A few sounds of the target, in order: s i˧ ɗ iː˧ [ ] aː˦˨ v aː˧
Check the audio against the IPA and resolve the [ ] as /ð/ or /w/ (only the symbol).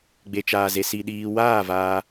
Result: w